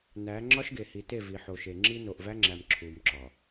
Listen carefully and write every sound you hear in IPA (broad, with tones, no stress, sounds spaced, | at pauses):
n æ˨˦ ŋ͡ǁ ɒ˦ ʃ ɡ e˨ h i˨ t e˦˨ v i˨ ħ o˨ ʃ e˨ ŋ͡ǁ i˦ n o˨ ʔ v æ˦ ŋ͡ǁ æ˨ m ǁʰ u˨ m ǁ ɒ˨